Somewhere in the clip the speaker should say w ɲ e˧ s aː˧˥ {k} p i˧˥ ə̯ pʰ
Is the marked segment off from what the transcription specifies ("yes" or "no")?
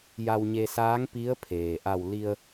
yes